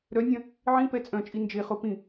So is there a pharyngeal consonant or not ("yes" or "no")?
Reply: yes